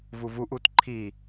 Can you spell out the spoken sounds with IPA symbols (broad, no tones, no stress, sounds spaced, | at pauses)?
v u v u ʔ u t ǃʰ i